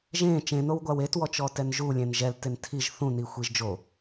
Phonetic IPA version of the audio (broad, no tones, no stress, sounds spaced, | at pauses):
ʒ ẽ t͡ʃ ẽ n o w ɡʷ a w e t w ɔ t͡ʃ ɔ t ɛ n ʒ u lʲ ẽ n ʒ ɛ l t e n tʰ i ʒ θ ũ n i xʷ i ʒ d͡ʒ o